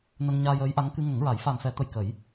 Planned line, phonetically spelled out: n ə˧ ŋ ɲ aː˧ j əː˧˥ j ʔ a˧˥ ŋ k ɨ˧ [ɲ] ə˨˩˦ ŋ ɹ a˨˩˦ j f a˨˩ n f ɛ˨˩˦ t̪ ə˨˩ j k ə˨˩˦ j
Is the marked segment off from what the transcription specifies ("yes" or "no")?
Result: yes